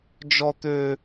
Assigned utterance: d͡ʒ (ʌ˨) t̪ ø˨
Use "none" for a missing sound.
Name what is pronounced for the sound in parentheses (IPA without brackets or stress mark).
ɔ˨